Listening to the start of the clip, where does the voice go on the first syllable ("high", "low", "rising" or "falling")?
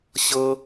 high